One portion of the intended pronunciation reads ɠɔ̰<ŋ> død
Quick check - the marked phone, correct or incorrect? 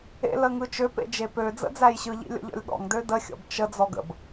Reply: correct